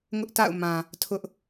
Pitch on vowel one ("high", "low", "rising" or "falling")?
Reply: high